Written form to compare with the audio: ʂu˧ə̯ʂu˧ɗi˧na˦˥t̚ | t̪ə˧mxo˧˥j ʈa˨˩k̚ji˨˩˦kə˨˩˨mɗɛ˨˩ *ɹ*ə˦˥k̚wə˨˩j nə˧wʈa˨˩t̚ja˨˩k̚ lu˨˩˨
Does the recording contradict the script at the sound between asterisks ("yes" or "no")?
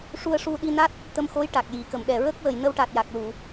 no